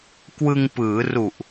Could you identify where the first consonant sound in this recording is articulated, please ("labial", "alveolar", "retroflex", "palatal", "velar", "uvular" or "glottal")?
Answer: velar